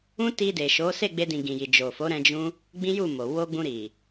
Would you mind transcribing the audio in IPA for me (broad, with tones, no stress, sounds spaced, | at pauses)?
ũ˦ t i˧ d e˨ ʃ o˨˦ s e˦˨ ɡ͡b e˧ d ĩ˨ ɡ ĩ˨ j i˨ d͡ʒ o˨ f o˨˦ ɾ ɛ̃˧ d͡ʒ ũ˦ | ɡ͡b ĩ˦ j u˦˨ m o˨ w o˧ ɡ͡b ũ˧ ɾ i˨